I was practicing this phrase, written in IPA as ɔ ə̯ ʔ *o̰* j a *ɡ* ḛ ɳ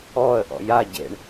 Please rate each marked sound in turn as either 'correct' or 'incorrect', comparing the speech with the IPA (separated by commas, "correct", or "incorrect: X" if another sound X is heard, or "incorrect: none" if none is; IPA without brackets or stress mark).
incorrect: ɔ̰, incorrect: ɟ